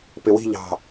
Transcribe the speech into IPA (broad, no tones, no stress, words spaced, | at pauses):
pɪwi̤ ʎɑ̤